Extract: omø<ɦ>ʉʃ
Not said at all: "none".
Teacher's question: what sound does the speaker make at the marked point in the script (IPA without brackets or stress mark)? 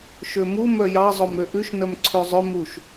ʔ